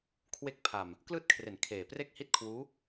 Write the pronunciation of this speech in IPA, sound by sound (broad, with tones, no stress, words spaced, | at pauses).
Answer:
kʰwe˥˩k̚ pʰa˨˩m | klɯː˦˥t̚kʰre˩˦n kʰeː˨˩ pre˥˩k̚hi˥˩t̚kʰwuː˦˥